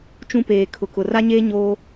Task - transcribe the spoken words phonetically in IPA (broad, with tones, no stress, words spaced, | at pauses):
t͡ʃũ˦peː˨kʰʊ˨kʊ˨ ra˦ɲeː˦ ɲoː˦